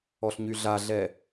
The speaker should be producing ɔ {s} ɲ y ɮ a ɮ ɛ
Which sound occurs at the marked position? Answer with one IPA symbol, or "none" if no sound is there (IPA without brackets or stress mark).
ɬ